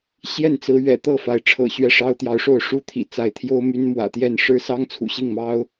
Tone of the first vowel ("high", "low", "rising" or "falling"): falling